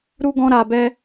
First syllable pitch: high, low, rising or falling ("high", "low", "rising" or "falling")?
high